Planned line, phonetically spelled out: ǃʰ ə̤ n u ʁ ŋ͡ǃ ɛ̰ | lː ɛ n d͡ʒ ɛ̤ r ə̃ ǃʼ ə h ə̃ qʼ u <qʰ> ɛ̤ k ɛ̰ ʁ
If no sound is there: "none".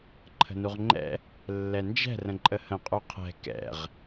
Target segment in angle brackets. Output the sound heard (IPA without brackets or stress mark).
qʰ